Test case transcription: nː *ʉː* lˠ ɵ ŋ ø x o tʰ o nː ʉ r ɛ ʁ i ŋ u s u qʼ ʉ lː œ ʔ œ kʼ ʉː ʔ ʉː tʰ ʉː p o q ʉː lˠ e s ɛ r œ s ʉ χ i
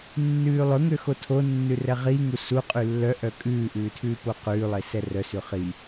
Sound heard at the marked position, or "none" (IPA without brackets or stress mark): ʉː